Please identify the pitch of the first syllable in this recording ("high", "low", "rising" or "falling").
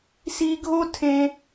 high